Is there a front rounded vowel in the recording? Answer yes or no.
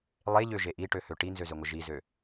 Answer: yes